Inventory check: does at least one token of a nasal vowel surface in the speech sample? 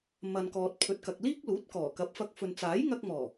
no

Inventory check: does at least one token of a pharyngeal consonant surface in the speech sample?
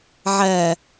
yes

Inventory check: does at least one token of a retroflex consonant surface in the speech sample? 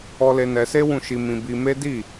no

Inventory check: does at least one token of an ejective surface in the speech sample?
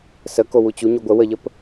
no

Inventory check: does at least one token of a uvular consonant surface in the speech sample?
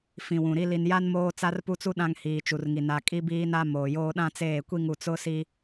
no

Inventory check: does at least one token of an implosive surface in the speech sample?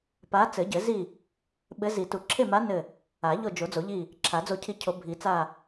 yes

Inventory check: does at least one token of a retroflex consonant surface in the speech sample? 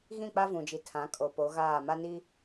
no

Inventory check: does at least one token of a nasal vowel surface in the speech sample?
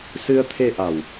no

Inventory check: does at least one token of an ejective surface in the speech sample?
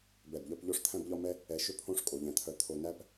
yes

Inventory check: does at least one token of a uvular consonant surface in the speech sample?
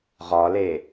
yes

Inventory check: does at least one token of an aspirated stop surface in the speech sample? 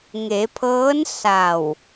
yes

